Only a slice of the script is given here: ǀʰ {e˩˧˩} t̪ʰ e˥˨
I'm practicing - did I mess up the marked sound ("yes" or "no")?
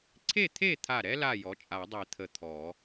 yes